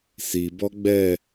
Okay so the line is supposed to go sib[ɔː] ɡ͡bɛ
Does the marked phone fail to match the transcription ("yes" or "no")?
yes